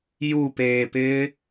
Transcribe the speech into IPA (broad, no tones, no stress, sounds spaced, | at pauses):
j u p eː p ɪː